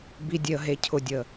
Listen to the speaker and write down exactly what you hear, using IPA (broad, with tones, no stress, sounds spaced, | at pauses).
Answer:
b i˩ dʲ e˩ ə̯ ɦ e˩ cʰ ʊ˩ dʲ ə˩